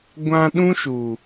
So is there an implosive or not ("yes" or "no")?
yes